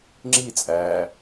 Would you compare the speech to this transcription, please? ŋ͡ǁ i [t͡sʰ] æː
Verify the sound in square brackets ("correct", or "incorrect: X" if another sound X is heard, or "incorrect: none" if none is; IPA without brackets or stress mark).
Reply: incorrect: t͡sʼ